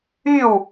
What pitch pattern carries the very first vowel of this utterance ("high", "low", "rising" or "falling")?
falling